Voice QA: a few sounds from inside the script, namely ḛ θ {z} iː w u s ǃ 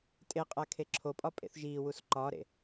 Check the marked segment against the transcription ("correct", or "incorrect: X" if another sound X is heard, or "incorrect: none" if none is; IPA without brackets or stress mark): incorrect: ʒ